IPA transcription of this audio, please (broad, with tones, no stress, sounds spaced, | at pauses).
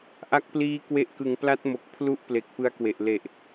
ʔ a˦˥ k̚ p l iː˦˥ k w e˦˥ ʔ k ɯ˨˩ ŋ p l a˦˥ t̚ m o˨˩ k̚ pʰ l u˦˥ ʔ p l e˨˩ k̚ p ɯ˦˥ a̯ k w e˨˩ ʔ l e˨˩ ʔ